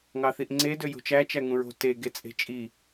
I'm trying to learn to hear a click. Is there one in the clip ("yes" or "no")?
yes